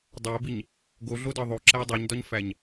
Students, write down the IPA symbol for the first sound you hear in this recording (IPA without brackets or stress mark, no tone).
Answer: dˤ